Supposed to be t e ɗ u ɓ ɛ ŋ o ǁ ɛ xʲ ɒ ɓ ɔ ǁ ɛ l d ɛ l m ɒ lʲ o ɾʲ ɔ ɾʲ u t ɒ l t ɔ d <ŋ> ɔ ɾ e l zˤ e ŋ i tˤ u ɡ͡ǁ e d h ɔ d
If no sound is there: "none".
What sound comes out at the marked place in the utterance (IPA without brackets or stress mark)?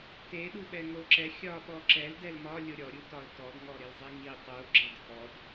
ŋ